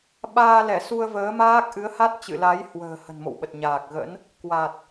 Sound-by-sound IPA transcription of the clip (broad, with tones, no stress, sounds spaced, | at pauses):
ɓ aː˧ l ɛ˧˩ s u˧ ə̯ v əː˨˦ m aː˦˥ k̚ ʔ ɨ˨˦ ə̯ h a˦˥ t̚ t͡ɕ ɨ̰˧˨ l a˨˦ j h w ə̤ː˨˩ h ə̤˨˩ n m o̰˧˨ w ɓ ə˨˩ t̚ ɲ aː˨˩ k̚ ɣ ə̰˧˥ n | k w a˨˩ t̚